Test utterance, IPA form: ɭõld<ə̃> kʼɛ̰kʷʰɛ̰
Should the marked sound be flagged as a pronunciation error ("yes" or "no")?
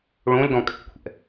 yes